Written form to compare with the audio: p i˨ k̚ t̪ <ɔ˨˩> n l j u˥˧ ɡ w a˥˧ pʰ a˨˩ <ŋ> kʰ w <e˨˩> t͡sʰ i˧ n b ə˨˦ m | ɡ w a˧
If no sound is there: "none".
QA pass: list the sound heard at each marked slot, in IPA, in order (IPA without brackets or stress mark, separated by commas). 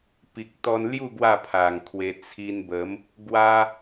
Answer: ɔ˧, ŋ, e˧